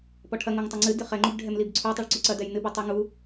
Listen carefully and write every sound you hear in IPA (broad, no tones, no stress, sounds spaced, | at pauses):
p ɔ ʈʰ ɐ ŋ o ŋ tˤ ɐ ŋ͡ǀ ɨ d ɨ χ ɛ ŋ͡ǃ u b ɖʱ ɛ m l i b ǀʰ u tˤ ɛ ɭ ǀ u ǀ ɐ d ɛ j n ɨ b ɨ tˤ i ŋ u